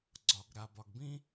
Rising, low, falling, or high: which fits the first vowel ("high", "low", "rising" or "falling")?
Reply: low